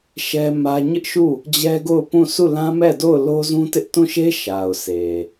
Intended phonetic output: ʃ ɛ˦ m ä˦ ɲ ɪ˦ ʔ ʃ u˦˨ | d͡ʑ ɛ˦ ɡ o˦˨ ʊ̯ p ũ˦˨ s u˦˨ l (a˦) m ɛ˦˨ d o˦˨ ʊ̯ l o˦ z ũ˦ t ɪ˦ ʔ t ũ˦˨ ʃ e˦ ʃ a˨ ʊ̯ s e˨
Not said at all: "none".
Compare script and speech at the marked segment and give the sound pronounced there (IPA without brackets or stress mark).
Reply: ã˦